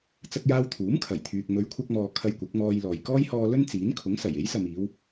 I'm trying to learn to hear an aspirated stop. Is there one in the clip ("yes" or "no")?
yes